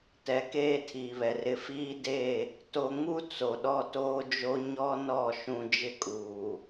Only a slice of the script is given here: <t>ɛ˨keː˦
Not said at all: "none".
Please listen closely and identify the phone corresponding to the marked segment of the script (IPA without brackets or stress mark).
t